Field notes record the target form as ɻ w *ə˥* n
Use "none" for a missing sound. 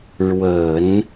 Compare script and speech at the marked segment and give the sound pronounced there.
ə˨˩˦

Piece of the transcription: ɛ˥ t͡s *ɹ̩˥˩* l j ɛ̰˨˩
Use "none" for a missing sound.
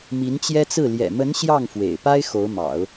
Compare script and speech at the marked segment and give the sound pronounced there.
ɹ̩˥˩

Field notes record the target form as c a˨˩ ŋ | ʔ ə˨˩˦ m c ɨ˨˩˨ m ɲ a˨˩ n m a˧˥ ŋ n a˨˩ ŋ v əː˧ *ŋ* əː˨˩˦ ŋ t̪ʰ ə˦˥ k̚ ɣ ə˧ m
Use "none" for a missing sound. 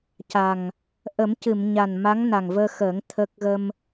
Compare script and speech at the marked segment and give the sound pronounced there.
x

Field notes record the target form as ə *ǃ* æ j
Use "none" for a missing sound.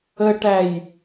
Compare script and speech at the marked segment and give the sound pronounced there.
ʈ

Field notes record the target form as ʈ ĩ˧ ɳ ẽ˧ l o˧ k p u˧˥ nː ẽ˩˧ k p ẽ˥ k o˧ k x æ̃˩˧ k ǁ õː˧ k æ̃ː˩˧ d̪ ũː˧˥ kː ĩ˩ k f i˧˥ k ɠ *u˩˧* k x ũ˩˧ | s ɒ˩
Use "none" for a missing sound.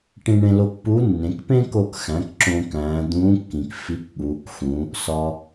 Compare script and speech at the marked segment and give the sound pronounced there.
uː˩˧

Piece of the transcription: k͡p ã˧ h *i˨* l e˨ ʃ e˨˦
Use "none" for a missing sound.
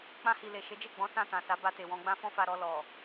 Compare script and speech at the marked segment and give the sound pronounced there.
i˨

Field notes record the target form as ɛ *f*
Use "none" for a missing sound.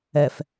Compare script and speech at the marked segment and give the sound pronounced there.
f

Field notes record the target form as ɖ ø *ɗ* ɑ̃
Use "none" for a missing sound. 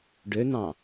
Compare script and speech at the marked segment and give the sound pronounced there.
n̪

